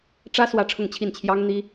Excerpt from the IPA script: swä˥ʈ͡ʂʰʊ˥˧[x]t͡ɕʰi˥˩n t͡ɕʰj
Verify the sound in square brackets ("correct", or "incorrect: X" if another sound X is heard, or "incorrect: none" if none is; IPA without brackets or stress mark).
incorrect: ŋ